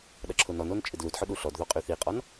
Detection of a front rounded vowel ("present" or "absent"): present